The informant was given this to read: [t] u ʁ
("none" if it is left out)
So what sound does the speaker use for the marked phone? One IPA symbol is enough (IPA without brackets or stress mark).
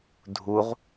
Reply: dʱ